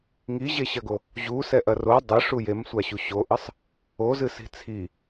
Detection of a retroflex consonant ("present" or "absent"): present